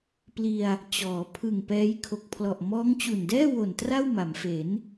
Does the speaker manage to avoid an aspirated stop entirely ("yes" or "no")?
no